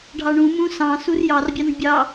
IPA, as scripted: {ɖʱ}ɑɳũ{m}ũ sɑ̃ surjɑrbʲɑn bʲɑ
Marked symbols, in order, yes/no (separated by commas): yes, yes